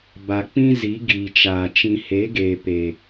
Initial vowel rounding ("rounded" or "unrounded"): unrounded